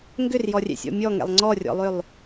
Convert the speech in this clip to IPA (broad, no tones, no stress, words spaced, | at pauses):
ŋɡʏrjɔrʲɛ̰sʲɔ̰ mʲɔŋɛ̰lˠ ŋ͡ǀɔrʲɔ̰lˠʏlˠ